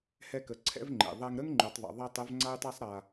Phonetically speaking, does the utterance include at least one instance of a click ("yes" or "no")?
yes